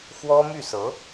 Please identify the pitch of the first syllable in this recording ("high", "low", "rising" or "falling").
high